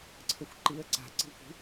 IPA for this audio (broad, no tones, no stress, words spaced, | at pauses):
ǀʰəxʷǃiə̯ ǀa̤ ǀi̤ʊ̯kʷi̤